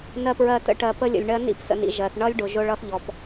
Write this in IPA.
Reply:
n ɜ˨ p ɹ ɜ˨ t ə̰˦ ʈ ɜ˨ p ə˦ lʲ ə̰˨ lʲ ɳ ɜ˦ n ḭ˦˨ p s ə̰˨ n ḭ˨ ʒ ɜ˨ θ ɳ ʌ˦ lʲ ɖ ʊ˨ ʒ ʊ˦ ɭ ʌ˦ θ ʎ ɔ˨ p

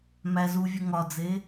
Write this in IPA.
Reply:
m æ z u vʲ u ŋ ɒ d͡z e

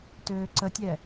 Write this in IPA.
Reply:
t øː ǀ ə tʲ ɛ

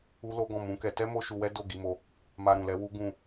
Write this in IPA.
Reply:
u˦ l o˦ ɡ ɔ̃˦˨ m ũ˨˦ k ɛ˧ t ɛ˦ m o˦ ʃ u˧ w ɛ˦ d o˦˨ ɡ i˧ m o˧ | m a˧ ɾ ũ˨ l ɛ˨˦ w u˦ ɡ ũ˦˨

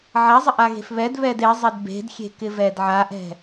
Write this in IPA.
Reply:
ʕ a zˤ ɪ ʔ a ɣ e̤ f β ɛ d β ɛ d e zˤ ɛ d b e̤ d xʲ e̤ k ɪ v ɛ d ʕ a ʔ ɛ̤

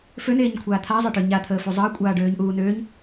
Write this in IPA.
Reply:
f ø n eː ɲ kʷʰ aː t̪ʰ a zˤ ɐ ʈ ø ɲ a t̪ʰ əː f u zˤ əː kʷʼ aː ɖ øː ɲ ʔ uː n øː ɲ

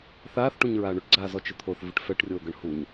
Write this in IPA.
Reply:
θ aː θ ʈ ũ ɲ ɹ aː ɳ ɵ ʈ ɡ͡ǀ aː z ɔ t͡ʃ ɪ t̪ʰ o θ v ɪ ʈ f ɛ ʈ rʲ oː ɡ ɤ ɳ h u ɲ

